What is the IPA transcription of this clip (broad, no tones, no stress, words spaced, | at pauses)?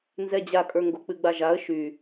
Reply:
nzɛd͡ʑakʼə˞ ŋɡok͡pɨɡ͡baʒaə̯ ʃy